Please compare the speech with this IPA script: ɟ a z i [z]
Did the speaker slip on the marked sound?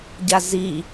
yes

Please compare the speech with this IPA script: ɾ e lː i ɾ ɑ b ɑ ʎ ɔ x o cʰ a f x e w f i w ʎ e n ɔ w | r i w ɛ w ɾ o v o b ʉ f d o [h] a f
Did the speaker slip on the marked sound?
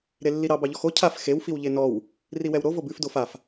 yes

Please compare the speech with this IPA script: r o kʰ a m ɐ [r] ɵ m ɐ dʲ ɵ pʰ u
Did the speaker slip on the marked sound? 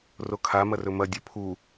no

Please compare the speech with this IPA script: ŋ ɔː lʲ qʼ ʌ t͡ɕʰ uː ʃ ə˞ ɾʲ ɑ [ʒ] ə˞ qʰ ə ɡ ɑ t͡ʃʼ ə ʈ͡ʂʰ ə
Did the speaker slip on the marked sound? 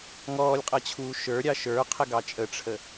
yes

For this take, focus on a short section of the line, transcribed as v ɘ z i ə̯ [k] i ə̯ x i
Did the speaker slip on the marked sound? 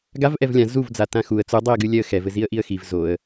yes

